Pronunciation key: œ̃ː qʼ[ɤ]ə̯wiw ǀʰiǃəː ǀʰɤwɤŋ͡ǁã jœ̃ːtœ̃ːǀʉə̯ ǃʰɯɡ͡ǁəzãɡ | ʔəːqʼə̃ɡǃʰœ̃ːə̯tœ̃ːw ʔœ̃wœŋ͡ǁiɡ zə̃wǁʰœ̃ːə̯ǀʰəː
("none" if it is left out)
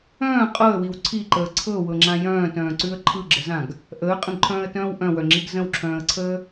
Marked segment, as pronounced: ɤ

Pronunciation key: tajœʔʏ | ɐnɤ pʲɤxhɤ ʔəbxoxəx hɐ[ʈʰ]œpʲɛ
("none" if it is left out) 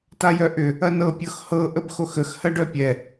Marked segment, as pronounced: ɖ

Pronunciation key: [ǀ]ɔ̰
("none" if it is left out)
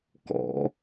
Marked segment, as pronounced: k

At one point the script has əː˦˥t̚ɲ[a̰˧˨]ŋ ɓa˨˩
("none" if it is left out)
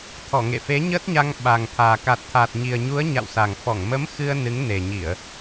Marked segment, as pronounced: a˧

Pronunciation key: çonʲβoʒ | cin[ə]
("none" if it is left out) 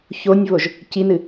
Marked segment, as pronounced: ɨ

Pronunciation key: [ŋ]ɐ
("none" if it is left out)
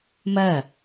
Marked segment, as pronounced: m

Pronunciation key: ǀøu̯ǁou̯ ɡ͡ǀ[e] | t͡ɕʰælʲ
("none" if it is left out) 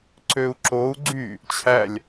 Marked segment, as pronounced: y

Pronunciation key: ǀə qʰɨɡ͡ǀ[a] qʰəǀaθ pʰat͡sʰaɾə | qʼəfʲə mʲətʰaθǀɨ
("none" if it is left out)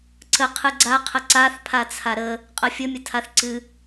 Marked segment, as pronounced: a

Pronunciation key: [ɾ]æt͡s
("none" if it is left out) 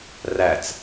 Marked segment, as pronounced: r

